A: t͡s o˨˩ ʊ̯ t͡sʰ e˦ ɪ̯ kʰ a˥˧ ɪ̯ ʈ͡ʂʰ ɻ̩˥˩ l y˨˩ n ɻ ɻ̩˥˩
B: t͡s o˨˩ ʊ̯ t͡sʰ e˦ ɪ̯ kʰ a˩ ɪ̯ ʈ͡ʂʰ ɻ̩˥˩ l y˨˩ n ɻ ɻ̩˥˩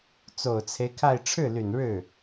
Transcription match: A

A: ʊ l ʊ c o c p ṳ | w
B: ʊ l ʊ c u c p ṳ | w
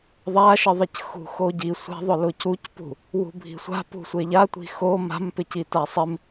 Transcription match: B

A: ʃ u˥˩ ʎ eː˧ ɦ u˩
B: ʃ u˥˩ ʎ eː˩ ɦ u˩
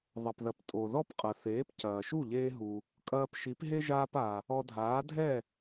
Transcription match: A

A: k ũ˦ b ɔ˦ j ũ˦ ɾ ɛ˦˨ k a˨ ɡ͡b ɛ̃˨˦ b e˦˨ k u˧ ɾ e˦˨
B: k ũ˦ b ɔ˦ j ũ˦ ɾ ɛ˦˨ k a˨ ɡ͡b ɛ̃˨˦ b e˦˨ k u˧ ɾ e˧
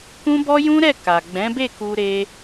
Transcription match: B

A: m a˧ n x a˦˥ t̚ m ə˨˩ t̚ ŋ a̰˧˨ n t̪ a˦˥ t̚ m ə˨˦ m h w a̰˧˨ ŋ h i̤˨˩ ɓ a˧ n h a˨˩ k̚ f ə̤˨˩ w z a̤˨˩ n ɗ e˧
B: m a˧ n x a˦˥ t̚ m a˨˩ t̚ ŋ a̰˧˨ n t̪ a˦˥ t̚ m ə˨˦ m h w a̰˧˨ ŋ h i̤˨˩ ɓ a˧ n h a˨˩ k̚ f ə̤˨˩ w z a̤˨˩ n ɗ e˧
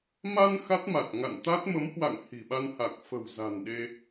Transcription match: B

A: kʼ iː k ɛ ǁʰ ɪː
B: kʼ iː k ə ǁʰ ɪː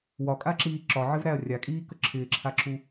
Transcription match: B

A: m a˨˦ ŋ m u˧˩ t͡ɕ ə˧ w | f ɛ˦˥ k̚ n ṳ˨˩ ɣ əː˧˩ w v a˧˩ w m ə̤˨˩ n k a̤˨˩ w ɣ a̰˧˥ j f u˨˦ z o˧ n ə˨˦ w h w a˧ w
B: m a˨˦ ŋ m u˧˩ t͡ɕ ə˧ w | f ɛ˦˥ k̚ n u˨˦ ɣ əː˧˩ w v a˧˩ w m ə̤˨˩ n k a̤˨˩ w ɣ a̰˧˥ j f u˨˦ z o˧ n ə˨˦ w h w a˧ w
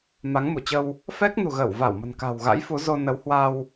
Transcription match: A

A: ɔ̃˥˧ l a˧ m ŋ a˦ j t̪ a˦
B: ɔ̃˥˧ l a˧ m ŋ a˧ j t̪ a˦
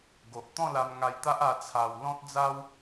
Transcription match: B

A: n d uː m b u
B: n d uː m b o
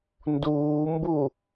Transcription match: A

